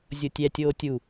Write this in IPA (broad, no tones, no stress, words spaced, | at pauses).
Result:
zʲotʲɛtʲoː tʲu